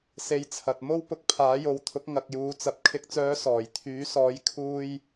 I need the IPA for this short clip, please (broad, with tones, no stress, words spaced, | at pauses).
se˧jt͡sʰɐ˨t̚ mo˥wpʊ˧k̚ pʰaː˨˥jo˨˧wt̪ʰʊ˨˥k̚ ŋɐ˨k̚juː˨t͡sɐ˨p̚ kʰɪ˨k̚t͡sœː˨˧ sɔː˨˩jt̪ʰyː˨˥sɔː˨˥j kʰuː˧j